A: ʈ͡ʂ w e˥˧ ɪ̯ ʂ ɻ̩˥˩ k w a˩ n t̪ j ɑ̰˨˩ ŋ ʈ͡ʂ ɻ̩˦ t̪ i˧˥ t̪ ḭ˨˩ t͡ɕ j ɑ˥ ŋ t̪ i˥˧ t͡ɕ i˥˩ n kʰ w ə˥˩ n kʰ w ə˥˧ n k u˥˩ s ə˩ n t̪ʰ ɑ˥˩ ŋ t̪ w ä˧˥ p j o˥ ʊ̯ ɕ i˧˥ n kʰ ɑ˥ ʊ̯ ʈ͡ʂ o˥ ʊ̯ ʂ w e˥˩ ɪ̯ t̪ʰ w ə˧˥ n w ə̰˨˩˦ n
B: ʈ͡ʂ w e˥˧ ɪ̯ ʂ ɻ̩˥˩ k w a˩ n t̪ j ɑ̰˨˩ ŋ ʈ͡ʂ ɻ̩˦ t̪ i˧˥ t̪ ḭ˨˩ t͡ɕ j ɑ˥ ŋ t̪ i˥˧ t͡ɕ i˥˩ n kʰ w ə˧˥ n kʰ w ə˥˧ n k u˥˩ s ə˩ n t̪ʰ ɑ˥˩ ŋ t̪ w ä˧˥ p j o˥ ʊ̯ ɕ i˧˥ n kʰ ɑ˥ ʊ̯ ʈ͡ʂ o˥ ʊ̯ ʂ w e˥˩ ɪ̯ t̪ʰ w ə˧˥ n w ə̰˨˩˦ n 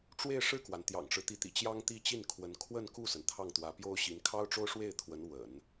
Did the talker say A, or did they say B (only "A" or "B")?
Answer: B